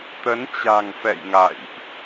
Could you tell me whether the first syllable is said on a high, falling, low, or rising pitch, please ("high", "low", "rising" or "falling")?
rising